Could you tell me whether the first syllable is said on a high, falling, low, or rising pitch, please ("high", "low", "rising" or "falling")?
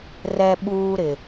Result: high